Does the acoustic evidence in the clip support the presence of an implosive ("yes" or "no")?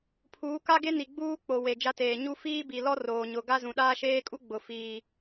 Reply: yes